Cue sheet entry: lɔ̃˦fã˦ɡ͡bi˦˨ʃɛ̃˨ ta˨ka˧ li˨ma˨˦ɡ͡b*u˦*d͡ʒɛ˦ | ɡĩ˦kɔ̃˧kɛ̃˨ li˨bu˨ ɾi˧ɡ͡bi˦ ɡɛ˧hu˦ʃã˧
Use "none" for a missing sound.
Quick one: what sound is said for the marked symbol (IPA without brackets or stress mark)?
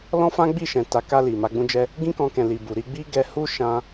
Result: ũ˦